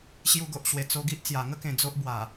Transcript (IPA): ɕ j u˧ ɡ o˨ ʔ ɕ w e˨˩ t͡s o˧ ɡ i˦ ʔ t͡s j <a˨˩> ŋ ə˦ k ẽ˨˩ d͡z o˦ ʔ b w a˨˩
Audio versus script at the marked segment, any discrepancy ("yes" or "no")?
no